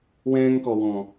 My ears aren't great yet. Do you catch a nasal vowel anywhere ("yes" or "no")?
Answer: yes